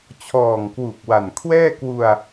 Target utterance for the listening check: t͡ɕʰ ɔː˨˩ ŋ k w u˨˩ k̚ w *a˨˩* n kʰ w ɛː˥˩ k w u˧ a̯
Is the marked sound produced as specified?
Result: yes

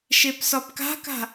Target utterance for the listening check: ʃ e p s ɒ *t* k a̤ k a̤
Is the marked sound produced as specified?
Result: no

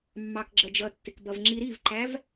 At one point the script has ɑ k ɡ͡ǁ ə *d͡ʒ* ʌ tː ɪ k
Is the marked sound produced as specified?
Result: yes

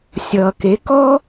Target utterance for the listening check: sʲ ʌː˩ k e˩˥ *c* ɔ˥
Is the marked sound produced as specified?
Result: no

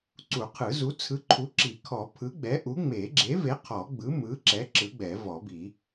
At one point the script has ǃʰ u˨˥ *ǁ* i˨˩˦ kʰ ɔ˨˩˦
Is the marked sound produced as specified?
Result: yes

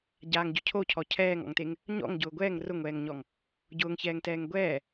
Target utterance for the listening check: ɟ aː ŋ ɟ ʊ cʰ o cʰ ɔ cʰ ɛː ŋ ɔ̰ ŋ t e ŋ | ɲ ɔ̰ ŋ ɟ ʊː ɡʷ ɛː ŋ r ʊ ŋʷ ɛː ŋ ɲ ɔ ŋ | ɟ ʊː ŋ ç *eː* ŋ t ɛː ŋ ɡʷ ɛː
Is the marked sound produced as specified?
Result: no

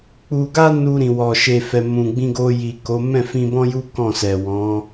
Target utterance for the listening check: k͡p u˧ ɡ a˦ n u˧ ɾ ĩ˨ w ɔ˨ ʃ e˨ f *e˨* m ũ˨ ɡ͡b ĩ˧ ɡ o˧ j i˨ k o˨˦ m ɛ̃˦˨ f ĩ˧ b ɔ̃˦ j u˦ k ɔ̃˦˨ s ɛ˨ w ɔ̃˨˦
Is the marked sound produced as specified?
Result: no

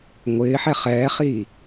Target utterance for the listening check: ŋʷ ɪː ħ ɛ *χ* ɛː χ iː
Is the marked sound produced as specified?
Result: yes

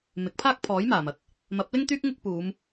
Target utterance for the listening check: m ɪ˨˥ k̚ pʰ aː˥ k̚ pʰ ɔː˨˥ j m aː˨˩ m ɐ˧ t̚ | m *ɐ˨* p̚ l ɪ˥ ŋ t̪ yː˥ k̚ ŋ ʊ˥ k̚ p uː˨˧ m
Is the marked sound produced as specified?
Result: no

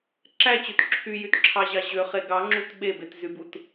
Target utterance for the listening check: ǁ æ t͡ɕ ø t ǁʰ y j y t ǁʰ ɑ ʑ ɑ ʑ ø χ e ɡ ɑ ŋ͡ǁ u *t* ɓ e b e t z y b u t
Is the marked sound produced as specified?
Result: yes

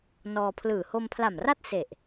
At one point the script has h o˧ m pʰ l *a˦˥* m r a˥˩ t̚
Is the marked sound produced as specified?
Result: no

